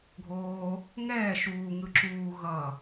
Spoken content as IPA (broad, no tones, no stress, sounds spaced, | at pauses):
ɡʱ oː | ŋ ɛː ʃ uː ŋ ɯ ǁ uː ɣ ʌ